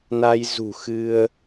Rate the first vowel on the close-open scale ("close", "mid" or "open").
open